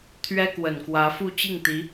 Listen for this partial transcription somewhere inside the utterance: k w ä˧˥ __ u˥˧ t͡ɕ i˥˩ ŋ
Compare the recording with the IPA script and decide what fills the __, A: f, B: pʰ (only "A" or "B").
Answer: A